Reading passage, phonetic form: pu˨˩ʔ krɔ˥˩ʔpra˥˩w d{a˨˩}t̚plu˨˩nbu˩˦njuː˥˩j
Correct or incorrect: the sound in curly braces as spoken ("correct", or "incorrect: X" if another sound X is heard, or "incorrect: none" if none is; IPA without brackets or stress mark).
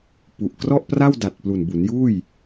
correct